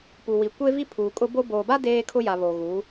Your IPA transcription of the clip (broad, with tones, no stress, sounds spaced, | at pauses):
p u˨ w i˨ kʷ e˦ v i˦ pʰ uː˨ kʼ ʊ˦ b o˦ b oː˨ b a˦ d eː˦ kʰ ʊ˦ j a˨ β o˨ ɣ u˨˦